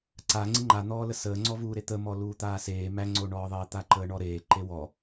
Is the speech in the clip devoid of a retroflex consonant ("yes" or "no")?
no